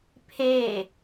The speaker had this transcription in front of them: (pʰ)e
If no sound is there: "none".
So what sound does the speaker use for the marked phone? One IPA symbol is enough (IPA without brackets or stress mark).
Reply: pʰ